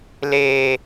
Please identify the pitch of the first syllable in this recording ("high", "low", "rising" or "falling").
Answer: high